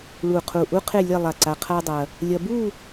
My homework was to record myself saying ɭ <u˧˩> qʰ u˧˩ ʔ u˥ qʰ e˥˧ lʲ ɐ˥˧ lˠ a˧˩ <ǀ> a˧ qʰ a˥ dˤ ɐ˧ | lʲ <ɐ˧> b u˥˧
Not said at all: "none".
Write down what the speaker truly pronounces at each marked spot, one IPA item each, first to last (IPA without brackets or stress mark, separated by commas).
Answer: u˧˩, ǀ, ɐ˧